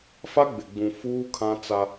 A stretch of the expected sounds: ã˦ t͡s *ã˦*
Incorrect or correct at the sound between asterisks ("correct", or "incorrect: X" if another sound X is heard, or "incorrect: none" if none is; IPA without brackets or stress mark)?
incorrect: a˦